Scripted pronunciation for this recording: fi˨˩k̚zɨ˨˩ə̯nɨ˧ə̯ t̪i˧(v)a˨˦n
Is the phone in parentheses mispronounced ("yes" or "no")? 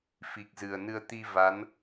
no